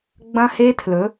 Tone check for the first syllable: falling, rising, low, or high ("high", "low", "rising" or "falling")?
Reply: high